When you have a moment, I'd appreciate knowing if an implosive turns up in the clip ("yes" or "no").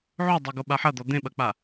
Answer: yes